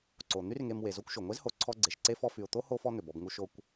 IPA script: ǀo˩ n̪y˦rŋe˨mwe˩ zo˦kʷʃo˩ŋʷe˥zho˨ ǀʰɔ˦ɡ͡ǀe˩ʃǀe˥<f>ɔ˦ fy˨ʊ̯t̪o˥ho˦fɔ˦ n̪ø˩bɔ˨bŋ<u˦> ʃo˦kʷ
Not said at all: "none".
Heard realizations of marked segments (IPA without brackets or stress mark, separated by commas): f, u˦